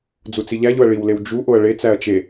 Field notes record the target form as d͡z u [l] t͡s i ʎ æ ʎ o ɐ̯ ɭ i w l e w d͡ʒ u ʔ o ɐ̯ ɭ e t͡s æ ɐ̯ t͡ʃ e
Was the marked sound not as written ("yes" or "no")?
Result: yes